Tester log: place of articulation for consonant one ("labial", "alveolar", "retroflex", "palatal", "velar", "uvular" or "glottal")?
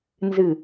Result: alveolar